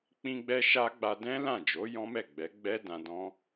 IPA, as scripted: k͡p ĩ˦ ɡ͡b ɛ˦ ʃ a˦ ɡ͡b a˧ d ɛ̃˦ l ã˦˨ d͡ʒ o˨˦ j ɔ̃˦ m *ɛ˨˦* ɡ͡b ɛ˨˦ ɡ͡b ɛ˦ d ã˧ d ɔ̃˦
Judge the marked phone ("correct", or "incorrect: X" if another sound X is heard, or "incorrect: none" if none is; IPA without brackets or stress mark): incorrect: ɛ˦˨